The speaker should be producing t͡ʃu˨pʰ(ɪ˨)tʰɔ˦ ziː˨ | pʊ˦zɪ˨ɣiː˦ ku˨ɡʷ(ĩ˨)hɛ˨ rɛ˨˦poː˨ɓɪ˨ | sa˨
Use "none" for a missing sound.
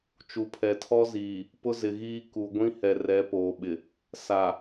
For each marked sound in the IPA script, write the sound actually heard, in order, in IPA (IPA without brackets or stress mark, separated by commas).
ɛ˨, ĩ˦